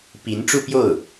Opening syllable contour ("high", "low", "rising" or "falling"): rising